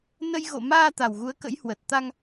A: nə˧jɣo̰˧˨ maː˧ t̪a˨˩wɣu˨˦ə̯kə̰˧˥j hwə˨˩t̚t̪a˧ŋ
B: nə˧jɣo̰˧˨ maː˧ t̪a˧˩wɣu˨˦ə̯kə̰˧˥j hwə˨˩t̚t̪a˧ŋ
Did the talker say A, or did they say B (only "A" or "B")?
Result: A